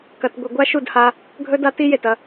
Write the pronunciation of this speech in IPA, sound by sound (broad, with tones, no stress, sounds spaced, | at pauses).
k ɐ˧ t ɡʷ i˧ ɡʷ a˦ ʃ u˦˨ d h a˧ | ɡʱ ɵ˦ d a˦ t i˦ j e˨ t ɐ˧